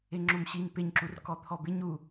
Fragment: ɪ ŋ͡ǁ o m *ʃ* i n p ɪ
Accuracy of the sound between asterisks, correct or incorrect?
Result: incorrect